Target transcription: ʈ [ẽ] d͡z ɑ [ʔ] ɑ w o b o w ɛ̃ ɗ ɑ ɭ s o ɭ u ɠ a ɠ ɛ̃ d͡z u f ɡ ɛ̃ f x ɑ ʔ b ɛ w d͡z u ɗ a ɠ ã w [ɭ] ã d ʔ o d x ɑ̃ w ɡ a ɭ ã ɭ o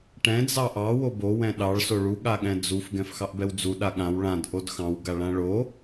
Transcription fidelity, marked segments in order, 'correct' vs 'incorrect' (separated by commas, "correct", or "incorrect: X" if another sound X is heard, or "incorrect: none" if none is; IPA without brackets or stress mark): incorrect: ɛ̃, correct, correct